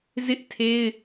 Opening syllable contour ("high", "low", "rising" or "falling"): high